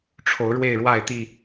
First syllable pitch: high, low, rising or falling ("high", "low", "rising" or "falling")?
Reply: rising